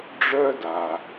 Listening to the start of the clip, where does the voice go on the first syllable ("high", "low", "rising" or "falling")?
high